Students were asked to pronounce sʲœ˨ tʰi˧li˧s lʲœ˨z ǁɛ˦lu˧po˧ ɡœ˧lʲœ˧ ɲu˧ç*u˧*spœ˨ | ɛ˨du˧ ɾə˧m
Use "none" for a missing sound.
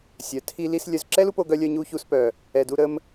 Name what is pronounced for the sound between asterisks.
u˧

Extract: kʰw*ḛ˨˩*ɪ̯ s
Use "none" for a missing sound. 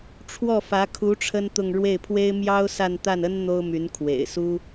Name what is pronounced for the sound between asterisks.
ḛ˨˩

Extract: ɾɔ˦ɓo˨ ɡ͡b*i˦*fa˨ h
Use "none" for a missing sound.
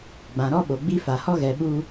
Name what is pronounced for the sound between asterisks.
i˦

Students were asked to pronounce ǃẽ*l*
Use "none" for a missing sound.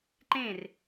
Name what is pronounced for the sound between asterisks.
r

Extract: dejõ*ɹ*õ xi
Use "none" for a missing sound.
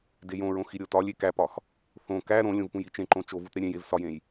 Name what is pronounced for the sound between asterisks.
ɹ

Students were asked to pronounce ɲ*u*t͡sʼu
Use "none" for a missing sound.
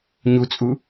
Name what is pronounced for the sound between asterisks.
u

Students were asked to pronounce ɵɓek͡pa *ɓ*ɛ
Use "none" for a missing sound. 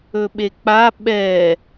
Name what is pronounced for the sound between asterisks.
ɓ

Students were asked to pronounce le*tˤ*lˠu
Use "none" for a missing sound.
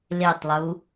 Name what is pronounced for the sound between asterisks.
tˤ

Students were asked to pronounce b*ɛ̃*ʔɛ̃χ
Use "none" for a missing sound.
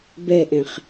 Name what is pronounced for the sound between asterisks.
ɛ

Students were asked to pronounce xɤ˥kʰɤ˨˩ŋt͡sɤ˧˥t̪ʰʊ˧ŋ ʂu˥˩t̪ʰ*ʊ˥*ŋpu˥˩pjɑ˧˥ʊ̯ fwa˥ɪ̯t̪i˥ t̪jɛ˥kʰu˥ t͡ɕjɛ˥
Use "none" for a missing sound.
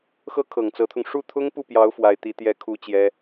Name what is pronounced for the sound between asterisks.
ʊ˥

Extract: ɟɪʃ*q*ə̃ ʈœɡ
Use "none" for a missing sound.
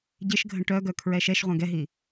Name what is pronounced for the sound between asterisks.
ɡʱ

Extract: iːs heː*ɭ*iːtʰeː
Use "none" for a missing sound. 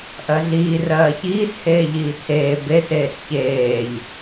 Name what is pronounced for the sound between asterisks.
ʎ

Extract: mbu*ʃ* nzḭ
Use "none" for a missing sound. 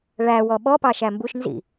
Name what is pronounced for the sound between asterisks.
ʃ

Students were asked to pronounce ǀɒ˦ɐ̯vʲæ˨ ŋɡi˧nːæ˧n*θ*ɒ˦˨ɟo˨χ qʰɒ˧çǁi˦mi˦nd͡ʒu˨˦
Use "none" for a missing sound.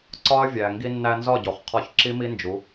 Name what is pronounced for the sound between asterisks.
z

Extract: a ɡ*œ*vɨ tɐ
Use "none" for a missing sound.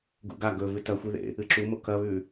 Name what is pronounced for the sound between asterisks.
ɵ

